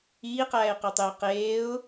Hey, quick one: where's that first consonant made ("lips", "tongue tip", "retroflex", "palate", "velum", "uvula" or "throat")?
uvula